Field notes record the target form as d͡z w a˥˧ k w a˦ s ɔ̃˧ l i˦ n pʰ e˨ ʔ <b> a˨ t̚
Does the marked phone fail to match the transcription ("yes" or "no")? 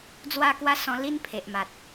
yes